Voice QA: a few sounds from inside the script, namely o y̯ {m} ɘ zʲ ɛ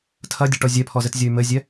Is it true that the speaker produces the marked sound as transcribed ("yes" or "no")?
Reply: yes